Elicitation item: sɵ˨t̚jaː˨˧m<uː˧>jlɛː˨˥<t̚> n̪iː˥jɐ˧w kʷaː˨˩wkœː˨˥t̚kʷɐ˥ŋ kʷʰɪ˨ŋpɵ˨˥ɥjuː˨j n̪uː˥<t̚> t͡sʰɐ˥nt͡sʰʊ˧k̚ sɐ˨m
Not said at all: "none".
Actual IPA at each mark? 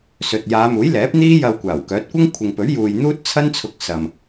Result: uː˨˥, p̚, t̚

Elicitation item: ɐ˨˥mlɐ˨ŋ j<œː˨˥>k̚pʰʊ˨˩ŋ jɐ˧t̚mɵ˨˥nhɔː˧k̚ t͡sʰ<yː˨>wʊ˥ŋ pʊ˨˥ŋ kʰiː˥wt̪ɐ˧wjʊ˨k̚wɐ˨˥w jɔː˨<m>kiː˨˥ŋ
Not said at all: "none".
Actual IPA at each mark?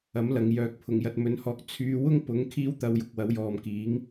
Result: œː˨, yː˧, m

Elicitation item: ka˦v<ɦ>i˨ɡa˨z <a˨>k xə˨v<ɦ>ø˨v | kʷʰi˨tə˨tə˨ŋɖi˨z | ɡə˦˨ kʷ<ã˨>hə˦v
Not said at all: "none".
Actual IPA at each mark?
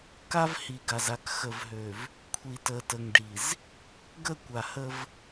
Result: h, a˨, ɦ, a˨

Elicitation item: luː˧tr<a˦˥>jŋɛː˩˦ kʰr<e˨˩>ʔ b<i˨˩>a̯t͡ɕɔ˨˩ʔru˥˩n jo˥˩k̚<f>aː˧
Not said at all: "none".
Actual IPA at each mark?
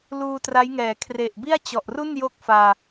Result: a˦˥, e˨˩, i˥˩, f

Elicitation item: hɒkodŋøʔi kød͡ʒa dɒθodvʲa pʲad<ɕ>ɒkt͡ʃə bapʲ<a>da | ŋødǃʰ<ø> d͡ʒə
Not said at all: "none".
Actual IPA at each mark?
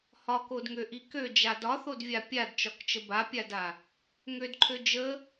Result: t͡ʃ, a, ø

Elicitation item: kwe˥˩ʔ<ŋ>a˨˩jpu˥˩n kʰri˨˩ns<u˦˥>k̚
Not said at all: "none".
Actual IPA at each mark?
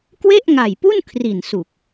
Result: ŋ, u˨˩

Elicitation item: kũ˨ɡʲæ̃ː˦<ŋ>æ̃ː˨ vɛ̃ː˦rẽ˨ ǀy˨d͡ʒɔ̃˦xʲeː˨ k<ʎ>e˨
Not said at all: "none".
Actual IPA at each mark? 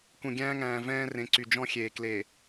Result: ŋ, l

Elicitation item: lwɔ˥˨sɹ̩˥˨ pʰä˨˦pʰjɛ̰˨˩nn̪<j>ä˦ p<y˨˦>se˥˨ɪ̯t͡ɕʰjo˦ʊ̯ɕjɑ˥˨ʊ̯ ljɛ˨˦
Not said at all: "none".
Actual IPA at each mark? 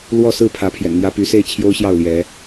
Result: j, y˨˦

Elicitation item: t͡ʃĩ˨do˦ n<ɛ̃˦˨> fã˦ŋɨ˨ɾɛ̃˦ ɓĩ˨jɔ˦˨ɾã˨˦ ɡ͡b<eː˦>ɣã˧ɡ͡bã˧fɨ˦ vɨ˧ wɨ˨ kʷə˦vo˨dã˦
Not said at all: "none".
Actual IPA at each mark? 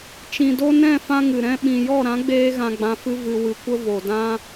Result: ɛ̃˦˨, eː˦

